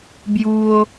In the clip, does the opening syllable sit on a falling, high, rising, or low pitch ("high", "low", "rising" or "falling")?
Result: low